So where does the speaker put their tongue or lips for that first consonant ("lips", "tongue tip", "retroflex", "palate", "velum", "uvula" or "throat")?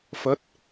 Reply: lips